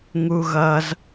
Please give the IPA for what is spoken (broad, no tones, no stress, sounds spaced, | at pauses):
ŋ u ɣ ʌ z